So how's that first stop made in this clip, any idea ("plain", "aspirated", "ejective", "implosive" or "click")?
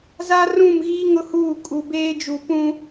ejective